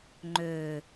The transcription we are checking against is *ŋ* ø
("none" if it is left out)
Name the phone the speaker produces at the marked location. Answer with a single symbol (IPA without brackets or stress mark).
ŋ͡ǃ